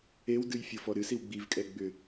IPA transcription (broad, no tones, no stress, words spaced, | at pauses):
ewdɨj fʲɤfɔɾɨsiw ɡ͡bivkʼɛ ɡ͡bʏ